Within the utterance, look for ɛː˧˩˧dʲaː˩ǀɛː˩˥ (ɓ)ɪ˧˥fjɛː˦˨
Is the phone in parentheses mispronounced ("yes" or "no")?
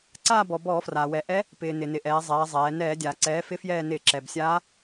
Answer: yes